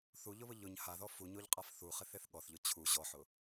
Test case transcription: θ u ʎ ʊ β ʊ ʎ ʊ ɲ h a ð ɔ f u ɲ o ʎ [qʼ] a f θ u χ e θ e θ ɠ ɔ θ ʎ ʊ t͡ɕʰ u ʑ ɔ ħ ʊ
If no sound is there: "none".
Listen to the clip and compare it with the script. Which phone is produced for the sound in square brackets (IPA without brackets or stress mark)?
qʼ